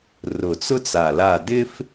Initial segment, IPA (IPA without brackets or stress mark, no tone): r